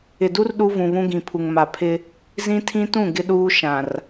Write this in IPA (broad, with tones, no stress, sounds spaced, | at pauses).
ɪ˨ d u˦ r ɗ u˦ v ũ˨ β ũ˦ ɡ ĩ˨ pʰ u˨ ŋ m a˨ pʰ ɪ˦ | z ĩ˦ tʰ ĩ˦ t ũ˦˨ ɡ ɪ˦ ɗ uː˦ ʃ ã˨ r